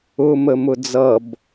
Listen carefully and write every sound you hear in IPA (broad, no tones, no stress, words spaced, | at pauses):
ʊməmʊ d͡zʌb